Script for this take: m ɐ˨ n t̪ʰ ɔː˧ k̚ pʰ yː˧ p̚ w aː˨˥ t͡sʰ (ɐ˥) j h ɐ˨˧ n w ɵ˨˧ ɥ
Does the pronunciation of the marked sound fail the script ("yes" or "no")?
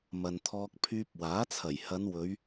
yes